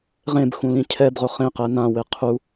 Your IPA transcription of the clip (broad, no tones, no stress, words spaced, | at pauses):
ʁẽbxũ lĩcʰɛbʁʊ χẽqɛ nãwɪ qʰu